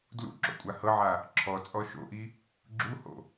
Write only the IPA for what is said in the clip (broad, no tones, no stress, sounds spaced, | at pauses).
d l ṵ ǁ o̰ kʷʼ a h ɤ ʕ a | ǁʰ ɔ t͡sʼ ɔ ʃ o̰ ʔ i | ɡ͡ǁ u h o̰